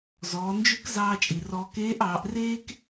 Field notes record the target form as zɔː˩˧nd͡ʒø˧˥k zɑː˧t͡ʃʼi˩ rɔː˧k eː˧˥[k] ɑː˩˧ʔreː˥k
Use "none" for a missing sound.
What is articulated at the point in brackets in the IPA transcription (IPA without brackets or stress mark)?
ʔ